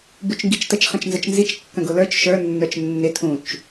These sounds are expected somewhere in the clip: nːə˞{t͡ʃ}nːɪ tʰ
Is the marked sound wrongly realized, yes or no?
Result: no